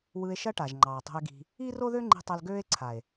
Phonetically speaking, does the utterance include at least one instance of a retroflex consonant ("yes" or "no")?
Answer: yes